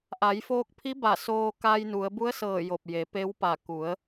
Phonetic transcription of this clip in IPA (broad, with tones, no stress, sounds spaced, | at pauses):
ʔ a˩˧ j f oː˧ k̚ pʰ i˧˥ b a˧˩ s oː˧ k a˧ j n u˩˧ ə̯ b u˧˥ ə̯ s ɤː˧˩ j o˧˩ p̚ j e˩˧ p e˧˥ w p a˧˩ k u˩˧ ə̯